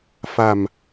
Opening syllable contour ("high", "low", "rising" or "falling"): low